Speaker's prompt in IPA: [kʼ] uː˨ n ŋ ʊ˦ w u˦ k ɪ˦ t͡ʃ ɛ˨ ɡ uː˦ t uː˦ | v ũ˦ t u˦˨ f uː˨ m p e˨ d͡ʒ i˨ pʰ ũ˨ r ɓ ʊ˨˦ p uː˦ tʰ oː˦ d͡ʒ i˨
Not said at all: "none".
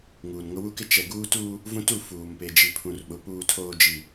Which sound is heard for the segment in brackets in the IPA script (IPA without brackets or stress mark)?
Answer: ŋ